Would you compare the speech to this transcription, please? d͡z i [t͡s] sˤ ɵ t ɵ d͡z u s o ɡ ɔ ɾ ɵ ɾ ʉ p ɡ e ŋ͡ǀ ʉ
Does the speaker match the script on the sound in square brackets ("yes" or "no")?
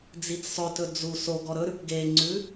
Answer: yes